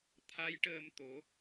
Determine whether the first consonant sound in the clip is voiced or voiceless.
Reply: voiceless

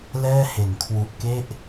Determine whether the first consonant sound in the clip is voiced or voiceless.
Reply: voiced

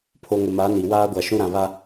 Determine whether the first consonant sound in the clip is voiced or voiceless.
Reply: voiceless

